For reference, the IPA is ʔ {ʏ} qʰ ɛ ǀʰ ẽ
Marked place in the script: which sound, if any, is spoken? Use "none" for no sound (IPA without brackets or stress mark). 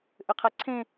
ʏ